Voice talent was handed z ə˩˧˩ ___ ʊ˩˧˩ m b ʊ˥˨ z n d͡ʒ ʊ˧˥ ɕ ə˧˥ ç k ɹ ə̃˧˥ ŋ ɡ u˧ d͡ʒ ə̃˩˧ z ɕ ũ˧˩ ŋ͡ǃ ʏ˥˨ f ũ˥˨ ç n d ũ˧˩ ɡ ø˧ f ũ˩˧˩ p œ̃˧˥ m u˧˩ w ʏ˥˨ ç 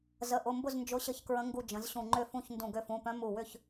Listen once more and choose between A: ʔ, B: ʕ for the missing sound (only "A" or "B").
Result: A